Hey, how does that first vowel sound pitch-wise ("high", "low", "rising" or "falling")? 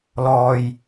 low